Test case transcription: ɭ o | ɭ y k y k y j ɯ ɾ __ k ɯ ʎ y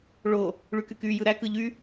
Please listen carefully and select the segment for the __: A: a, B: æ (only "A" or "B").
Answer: B